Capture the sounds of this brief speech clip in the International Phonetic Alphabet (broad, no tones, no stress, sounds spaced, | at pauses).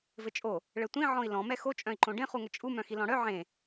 v ɘ t͡ʃʼ o | ɭ ɘ tʷ ĩ ʕ ɔ̃ i̯ l ɔ̃ m ɛ x o t͡ʃʼ œ̃ i̯ ǃ õ ɖ ẽ χ u ŋ ɘ t͡ʃʼ u m œ̃ x i l ɔ̃ ɽ œ ʕ ẽ